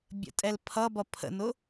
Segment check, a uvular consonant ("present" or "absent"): absent